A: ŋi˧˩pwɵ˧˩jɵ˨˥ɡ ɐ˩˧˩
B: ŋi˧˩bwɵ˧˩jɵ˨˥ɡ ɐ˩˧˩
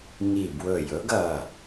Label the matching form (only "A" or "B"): B